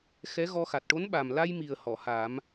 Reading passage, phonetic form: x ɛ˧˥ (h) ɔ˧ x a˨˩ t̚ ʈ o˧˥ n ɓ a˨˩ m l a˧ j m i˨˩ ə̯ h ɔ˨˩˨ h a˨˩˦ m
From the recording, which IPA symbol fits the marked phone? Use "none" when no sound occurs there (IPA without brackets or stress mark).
ɣ